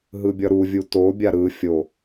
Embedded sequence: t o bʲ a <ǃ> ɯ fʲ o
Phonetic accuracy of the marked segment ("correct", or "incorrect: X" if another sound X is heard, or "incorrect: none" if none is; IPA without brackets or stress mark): incorrect: ɾ